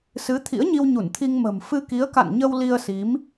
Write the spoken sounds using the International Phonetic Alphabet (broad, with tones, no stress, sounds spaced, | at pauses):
s ɨ˨˦ t̪ʰ ḭ˧˥ ə̯ ɲ i˧ w ɲ u˧˩ n t̪ʰ i˧ ŋ m ə̤˨˩ m f ɨ˧ k i˨˦ ə̯ k a̰˧˨ n ɲ ə˧ w l i˧ ə̯ s i˨˦ m